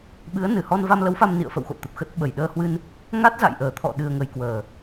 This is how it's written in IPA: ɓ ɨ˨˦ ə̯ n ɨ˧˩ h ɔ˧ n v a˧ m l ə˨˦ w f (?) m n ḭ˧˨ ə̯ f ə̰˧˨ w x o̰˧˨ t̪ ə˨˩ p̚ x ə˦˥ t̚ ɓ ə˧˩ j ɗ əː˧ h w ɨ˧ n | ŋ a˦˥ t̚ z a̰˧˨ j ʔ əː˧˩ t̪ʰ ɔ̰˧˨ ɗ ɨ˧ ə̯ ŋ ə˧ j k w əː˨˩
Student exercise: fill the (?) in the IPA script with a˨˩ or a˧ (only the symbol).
a˧